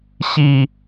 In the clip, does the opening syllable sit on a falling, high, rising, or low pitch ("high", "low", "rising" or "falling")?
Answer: low